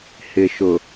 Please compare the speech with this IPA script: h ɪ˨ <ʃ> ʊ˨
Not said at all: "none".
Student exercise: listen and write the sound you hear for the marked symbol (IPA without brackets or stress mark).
ʃ